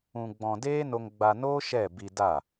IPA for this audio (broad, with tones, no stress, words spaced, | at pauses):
ũ˧ɡ͡bɔ̃˧ deː˦no˧ŋɡ͡ba˧noː˦ ʃɛ˦˨ bi˧da˦˨